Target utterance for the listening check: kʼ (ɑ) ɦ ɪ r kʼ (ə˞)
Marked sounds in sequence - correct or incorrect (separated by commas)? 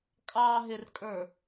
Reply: correct, correct